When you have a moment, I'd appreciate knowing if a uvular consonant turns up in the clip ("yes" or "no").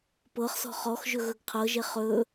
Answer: yes